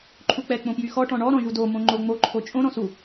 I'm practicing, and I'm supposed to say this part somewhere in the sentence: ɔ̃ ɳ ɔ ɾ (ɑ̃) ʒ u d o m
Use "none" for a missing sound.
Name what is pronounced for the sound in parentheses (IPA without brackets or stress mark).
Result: ɔ̃